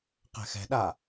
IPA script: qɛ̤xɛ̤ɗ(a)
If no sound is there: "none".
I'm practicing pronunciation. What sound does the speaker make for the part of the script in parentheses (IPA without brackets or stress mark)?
a